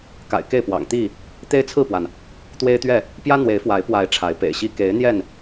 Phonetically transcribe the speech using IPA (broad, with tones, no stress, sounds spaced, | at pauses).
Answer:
k a̰˨˩ ɪ̯ k e˥˨ ɪ̯ p w ɑ̰˨˩ ŋ t̪ i˥˨ | t̪ e˦ ɪ̯ t͡sʰ ɹ̩˥˨ p w a˩ n | t̪ w e˦ ɪ̯ t̪ ɥ ɛ˥˨ | p j ä˦ n̪ w e˨˦ ɪ̯ f w a˨˦ ɪ̯ p w a˨˦ ɪ̯ ʈ͡ʂʰ a˨˦ ɪ̯ p ḛ˨˩ ɪ̯ ɕ i˦ k e˨˦ ɪ̯ n̪ j ɛ˥˨ n